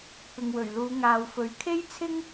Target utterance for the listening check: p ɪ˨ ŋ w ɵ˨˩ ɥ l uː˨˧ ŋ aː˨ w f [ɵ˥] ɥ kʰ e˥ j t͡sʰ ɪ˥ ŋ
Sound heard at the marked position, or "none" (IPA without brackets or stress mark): ɵ˨